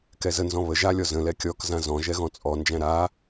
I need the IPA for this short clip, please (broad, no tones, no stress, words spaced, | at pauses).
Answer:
kɛzənzɔ̃ βə ʒalʲɔ zə̃lɛ kʲɔkzã zɔ̃ ʒɛɣɔ̃t͡sʼɔnd͡ʒæ̃ ɾa